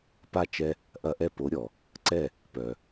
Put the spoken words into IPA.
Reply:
p a˥˩ t͡ʃ ɛ˦ | ʔ ɐ˦ ʔ ɛ˥˩ p o˨˥ ɾʲ ɔ˩ | ǀ ɛ˥˩ | p œ˩

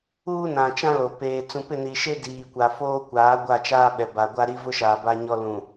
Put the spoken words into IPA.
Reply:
uː˦ n ã˨ t͡ʃ ã˦ l o˨ p eː˨ t͡s ũ˨ p ɪ˦˨ n i˨ ʃ e˦ d iː˨ kʷ a˨ f oː˦ kʷ aː˨˦ ɡʷ a˦˨ t͡ʃ aː˦ ɓ ɛ˨ b a˨ ɡʷ a˦ ɾ i˦ v ʊ˦ ʃ aː˨ b a˦ ɲ ɔ˦ l ũ˨

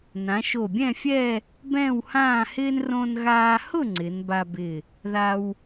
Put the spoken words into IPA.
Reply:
n ã˩˧ ʃ o˧˩ bʲ ɛ̃˥˧ fʲ ɛ˥˧ | b ɛ̃ː˥˧ w h ãː˥˧ h ɪː˥ n r õ˧ n ɣ aː˧ h ʊ˥˧ ŋ͡ǀ ɪ˩˧ n b a˧ b ɪ˧˩ | ð a˧ w

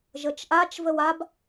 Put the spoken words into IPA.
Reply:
ʒ ə t͡ʃ ʔ a t͡ʃ v ə w a b

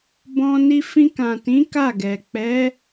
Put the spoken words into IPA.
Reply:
b ɔ̃˧ n i˧ f ĩ˧ k ã˨ t ĩ˨˦ k a˦˨ ɡ ɛ˨ k͡p ɛ˨˦

